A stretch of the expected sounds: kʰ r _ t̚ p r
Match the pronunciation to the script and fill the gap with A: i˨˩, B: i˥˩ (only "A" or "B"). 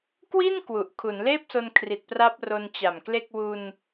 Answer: A